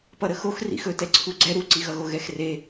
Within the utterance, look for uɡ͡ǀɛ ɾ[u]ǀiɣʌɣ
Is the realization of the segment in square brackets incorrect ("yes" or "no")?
no